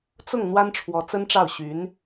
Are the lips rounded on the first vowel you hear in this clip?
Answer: yes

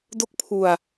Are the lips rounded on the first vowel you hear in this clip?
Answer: yes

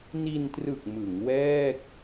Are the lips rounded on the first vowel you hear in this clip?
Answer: no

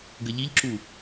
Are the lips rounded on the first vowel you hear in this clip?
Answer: no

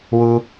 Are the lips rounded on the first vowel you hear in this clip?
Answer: yes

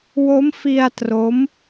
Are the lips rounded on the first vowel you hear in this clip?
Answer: yes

